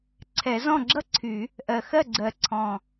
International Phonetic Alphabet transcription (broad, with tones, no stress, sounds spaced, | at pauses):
ǀʰ ɛ˨˩˦ z ɔ̃˥˩ ɡ͡ǁ ʌ˥ ǀʰ y˨˩˦ | ʔ ɜ˨˩ x ɜ˥˩ ɡ͡ǀ ɜ˨˩ ǀʰ ɔ̃˨˩